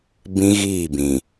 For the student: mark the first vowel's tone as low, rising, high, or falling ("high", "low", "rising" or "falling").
high